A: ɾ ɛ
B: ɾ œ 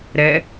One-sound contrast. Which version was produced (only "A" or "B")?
A